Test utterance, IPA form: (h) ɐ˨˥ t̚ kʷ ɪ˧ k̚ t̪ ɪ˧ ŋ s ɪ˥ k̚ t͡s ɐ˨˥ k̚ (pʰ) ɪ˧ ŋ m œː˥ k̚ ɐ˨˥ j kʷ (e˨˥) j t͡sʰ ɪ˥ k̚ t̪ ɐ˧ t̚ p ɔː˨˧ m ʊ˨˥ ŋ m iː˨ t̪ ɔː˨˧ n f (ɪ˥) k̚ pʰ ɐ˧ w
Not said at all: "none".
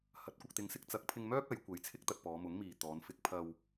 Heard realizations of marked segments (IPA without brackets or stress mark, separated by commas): h, pʰ, e˨˧, ɪ˧